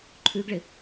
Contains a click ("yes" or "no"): yes